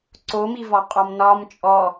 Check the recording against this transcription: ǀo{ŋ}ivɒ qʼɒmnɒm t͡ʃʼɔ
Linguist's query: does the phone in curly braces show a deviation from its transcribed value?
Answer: yes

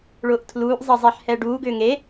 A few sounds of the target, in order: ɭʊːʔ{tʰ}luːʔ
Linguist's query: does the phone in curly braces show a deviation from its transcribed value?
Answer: no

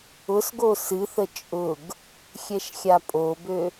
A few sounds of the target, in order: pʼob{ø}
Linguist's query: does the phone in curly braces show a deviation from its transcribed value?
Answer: no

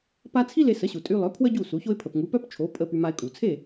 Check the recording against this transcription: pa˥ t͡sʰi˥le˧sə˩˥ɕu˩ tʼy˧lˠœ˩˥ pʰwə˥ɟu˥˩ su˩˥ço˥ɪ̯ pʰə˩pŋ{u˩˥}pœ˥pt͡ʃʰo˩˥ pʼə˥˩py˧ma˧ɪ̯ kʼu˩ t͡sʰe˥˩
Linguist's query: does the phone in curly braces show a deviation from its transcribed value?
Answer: no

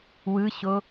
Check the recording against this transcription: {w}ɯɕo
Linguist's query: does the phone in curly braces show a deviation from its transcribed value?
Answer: no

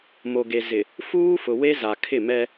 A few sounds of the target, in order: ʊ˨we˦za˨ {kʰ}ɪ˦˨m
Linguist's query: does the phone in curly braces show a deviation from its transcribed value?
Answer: no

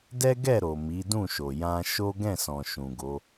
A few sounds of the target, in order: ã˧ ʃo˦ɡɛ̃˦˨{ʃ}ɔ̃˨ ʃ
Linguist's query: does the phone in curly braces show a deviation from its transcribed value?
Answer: yes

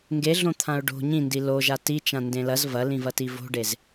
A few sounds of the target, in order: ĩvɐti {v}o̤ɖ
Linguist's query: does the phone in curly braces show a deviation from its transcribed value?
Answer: no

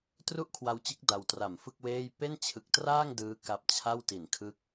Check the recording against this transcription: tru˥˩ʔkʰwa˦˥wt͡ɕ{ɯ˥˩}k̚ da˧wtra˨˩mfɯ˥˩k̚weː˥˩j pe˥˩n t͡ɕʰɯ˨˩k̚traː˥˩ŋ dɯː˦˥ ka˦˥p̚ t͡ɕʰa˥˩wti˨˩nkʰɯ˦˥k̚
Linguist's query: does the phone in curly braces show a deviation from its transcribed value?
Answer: yes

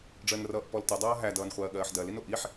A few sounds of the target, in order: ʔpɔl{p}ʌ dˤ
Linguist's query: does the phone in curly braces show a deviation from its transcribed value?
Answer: yes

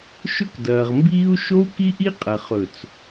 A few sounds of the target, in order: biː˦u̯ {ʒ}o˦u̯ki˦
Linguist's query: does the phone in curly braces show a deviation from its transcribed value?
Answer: yes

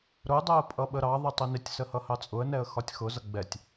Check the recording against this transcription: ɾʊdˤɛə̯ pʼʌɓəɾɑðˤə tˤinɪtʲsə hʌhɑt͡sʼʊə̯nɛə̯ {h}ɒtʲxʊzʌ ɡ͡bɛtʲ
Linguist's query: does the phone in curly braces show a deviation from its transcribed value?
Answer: yes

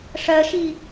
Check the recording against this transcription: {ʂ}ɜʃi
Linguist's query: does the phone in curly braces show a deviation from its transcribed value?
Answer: no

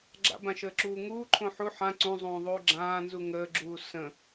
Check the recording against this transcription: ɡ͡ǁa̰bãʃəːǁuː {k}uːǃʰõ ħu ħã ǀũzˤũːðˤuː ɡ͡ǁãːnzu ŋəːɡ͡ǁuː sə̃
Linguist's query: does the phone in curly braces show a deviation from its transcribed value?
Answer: yes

